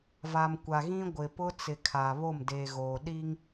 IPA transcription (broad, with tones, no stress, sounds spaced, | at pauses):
v a˨ m kʷ a˨ ɣ ĩ˦ ɡʷ ɪ˨ p ʊ˦ t͡s ɪ˨ kʰ a˨ β o˦˨ m d eː˨ ɣ oː˨ ɗ i˦ ŋ